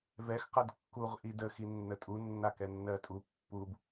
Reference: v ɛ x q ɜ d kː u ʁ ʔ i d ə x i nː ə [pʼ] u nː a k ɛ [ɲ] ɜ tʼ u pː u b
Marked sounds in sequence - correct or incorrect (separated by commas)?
incorrect, incorrect